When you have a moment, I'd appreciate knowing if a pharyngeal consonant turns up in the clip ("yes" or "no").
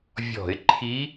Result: no